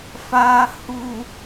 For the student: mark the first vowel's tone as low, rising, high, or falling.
low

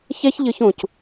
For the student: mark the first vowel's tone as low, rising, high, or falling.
high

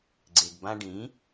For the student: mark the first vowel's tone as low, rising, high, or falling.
low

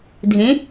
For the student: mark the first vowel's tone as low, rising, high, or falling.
rising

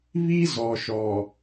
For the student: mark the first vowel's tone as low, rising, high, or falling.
high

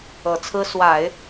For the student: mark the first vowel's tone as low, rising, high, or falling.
low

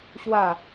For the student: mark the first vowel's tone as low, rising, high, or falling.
falling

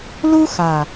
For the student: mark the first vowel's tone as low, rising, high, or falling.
high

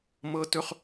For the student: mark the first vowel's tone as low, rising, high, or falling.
high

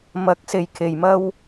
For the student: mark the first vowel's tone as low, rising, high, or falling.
rising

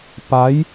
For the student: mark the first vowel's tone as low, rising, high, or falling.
rising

